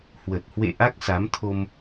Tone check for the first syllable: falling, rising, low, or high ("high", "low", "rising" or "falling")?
low